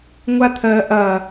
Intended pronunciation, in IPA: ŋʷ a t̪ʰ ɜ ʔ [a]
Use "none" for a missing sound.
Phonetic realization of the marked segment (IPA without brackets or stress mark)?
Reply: ɐ